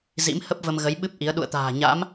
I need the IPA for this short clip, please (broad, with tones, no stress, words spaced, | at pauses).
zḭ˧˥m hə˦˥p̚ və˧mɣə˨˦jɓɨ˦˥p̚ ʔi˨˦ə̯ ɗṵ˧˨ə̯t̪a̤ː˨˩ ɲa̰˧˥m